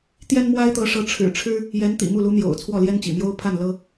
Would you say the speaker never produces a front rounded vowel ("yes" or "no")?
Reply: yes